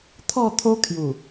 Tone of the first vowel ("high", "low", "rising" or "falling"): falling